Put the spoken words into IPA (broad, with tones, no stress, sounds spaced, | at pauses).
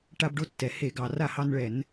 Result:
ʈ a˦ b ɖ o˥˨ tː ɛ˩ h e˧˩˧ ɡ ɑ˩ r a˥˨ h ɑ˦ n ɭ ɛ˧˩˧ n